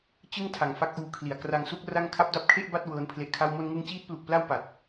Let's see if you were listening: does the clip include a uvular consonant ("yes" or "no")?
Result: no